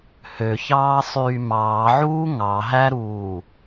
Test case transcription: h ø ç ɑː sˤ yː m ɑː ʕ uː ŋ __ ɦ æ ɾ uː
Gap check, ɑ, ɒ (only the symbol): ɑ